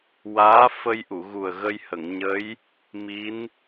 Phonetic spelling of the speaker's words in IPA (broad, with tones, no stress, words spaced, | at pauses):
waː˧˥fə˧jʔu˨˩˨ ɣu˨˩ə̯ɣə˧jhə˨˩˨ŋɲə˧˥j | mi˧˥n